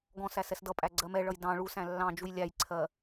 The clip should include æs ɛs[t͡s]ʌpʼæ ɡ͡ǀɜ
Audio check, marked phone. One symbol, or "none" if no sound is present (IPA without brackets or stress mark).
d